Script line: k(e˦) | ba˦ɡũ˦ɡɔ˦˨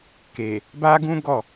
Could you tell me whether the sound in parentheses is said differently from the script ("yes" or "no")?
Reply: yes